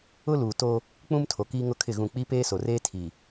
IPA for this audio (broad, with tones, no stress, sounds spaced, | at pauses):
ʊ˦ l uː˨ t o˦ | k͡p ũ˦ m tʰ o˨ k iː˦ ŋ ʊ˦ kʰ ɪ˦˨ ɣ ũ˦˨ k͡p i˦ p eː˦ s o˨ r eː˦ tʰ i˨